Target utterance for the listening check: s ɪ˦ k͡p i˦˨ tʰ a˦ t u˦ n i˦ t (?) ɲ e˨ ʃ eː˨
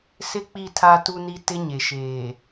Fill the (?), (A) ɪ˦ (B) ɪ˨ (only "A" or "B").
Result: A